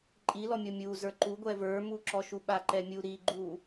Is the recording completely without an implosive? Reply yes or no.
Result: no